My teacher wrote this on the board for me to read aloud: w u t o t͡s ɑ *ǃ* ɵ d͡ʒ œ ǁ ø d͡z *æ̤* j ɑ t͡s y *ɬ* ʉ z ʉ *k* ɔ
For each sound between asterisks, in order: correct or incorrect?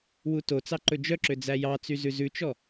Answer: correct, incorrect: æ, incorrect: z, incorrect: t͡ʃ

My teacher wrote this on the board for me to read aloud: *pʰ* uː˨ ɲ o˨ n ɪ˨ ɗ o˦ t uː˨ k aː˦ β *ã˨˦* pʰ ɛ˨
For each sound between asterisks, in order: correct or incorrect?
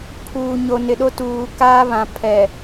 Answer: correct, incorrect: ã˨

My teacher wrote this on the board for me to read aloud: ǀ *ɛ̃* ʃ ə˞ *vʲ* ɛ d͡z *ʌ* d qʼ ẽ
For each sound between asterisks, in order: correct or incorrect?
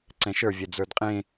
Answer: correct, correct, incorrect: ə˞

